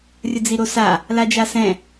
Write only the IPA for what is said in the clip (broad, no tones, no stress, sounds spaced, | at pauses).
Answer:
rʲ ə d͡z i ɾ o s a | l a d͡ʒ a s ɛ̃